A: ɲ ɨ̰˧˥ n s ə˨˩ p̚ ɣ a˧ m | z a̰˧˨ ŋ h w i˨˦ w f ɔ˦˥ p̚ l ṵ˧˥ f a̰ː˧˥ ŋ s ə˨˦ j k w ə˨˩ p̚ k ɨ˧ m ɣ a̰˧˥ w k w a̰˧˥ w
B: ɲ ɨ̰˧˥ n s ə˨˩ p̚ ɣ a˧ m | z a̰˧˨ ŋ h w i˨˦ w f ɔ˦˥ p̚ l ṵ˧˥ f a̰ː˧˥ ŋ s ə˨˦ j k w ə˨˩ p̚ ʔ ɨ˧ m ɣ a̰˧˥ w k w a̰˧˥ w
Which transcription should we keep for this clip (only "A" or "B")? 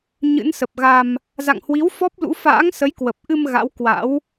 B